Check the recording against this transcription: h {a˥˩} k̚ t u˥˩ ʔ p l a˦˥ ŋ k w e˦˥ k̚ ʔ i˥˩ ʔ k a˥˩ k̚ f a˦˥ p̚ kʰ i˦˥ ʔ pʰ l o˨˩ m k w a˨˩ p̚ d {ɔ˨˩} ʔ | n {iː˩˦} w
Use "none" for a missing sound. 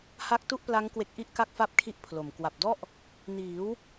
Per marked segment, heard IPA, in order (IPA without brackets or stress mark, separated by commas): a˥˩, ɔ˥˩, iː˩˦